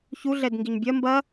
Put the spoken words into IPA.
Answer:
ç u ɮ ɛ d ŋ ɡ i ɲ bʲ ɐ m b ɐ

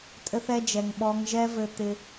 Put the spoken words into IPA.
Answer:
tʼ ɘ˦ θ ɛ˦ d͡ʒ ɛ˨ ŋ ɓ ɔ˧ ŋ ʒ ɛ˦ v ɘ˧ t̪ ɪ˧

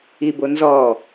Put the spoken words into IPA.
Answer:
i b o n z ɔ

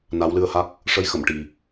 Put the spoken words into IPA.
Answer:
n a˧˥ w l ɨ˧ ə̯ h a˦˥ k̚ | ʂ ə˧ j x ə˨˩˨ m ʈ i˨˩

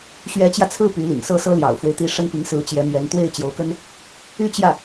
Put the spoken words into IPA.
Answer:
ɕ ɥ ɛ˧˥ t͡ɕ j ä˧ t͡sʰ ɹ̩˥˩ p y˧˥ l ḭ˨˩ ŋ s ɤ˥˩ s ɤ˥ l j ɑ̰˨˩ ʊ̯ f w e˦ ɪ̯ t̪ i˧˥ ʂ ə˥ n p i˧˥ ŋ s ɹ̩˧˥ t͡ɕ j ɛ˧˥ m ɥ ɛ˧˥ n t̪ w e˥˩ ɪ̯ t͡ɕ j o˧˥ ʊ̯ k ə˥ n | y˥˧ t͡ɕ j ä˥˩

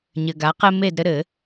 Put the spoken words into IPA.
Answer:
ɲ ɘ˨ ɡ a˨˦ q ɘ˦ m e˥˨ d ɾ ɘ˦ ɾ ɘ˨˩˦

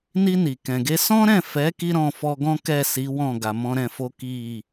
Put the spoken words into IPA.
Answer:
n i˧ n i˨ k ɛ̃˨ ɡ e˧ s ɔ̃˦ ɾ ɛ̃˦˨ f ɛ˨˦ k i˦ ɾ ɔ̃˦˨ f ɔ˧ ɡ ɔ̃˦ k ɛ˦˨ s i˨˦ w ɔ̃˦˨ ɡ a˨ m ɔ̃˧ ɾ ɛ̃˧ f o˦ k i˦˨

